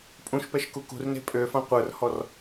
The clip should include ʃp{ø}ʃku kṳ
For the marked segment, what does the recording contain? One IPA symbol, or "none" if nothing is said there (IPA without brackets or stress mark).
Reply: ɛ